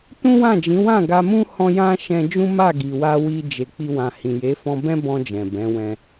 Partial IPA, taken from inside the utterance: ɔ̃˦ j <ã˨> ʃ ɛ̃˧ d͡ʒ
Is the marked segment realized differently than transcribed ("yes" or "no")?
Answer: yes